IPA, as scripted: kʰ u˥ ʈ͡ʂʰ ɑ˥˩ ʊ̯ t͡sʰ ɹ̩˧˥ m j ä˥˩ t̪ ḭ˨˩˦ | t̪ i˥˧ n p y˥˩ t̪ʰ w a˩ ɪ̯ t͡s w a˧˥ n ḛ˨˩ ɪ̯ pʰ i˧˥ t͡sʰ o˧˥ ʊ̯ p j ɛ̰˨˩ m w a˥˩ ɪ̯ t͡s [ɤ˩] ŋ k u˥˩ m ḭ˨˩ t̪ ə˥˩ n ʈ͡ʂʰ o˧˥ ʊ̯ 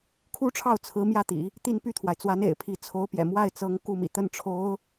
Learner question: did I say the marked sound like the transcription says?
no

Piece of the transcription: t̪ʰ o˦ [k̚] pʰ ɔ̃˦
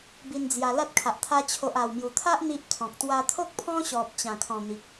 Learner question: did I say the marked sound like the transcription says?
yes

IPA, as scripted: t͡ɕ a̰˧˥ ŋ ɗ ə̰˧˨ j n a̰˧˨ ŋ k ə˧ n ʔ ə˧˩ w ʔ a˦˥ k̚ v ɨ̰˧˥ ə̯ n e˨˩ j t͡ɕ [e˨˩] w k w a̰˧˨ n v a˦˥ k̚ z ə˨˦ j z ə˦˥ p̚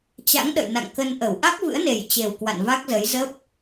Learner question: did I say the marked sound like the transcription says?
yes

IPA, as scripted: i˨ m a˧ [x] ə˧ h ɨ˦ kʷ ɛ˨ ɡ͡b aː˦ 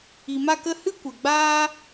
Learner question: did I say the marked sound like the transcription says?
no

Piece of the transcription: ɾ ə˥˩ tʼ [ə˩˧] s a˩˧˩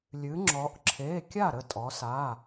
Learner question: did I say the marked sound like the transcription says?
no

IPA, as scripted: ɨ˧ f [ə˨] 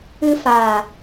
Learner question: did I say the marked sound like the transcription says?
no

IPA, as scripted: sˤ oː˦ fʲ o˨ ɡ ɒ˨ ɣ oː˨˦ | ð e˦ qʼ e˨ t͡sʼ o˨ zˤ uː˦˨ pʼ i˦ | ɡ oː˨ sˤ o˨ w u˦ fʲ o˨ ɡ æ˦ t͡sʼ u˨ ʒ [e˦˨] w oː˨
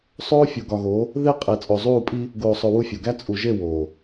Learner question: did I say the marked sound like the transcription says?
yes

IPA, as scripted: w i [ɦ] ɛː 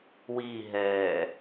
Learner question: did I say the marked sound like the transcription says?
yes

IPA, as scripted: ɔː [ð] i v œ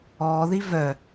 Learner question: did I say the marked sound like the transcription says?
yes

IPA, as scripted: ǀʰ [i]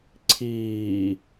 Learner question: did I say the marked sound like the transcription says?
no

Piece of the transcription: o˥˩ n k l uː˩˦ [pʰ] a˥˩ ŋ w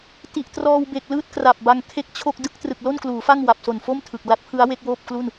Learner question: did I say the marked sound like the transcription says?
no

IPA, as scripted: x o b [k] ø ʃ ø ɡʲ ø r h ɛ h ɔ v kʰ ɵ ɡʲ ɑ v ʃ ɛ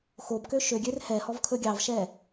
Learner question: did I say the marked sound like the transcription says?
yes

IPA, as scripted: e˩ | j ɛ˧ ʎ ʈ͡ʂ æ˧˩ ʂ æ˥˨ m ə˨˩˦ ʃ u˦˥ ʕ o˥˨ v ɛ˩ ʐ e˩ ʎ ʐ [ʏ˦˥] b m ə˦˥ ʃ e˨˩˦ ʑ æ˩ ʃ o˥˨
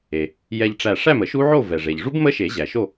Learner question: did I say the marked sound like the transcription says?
no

